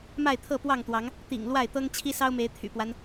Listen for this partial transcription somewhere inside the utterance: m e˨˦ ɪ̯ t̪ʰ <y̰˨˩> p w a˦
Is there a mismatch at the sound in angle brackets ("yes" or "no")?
no